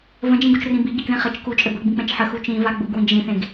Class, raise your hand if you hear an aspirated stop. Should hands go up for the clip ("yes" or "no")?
no